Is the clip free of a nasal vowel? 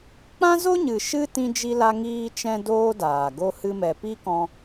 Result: no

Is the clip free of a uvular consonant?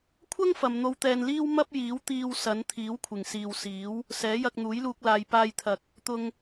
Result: yes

